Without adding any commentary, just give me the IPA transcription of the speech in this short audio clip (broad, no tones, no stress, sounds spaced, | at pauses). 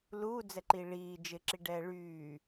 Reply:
l uː d͡z ɛ ǃ i ɭ iː d͡ʒ ɪ ǁ i ɖ ɛː ɭ yː